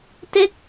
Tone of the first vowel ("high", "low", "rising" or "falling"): falling